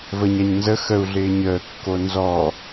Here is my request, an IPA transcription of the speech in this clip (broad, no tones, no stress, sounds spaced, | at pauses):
v ə ɲ a ɲ n z ə x ə u̯ ɮ ɪː ɲ əː kː o n z ɔ